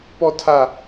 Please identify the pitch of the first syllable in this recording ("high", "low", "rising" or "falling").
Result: high